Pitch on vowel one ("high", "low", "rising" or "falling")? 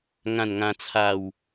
falling